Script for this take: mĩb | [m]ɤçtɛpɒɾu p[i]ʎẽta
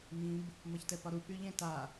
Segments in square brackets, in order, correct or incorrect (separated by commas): correct, incorrect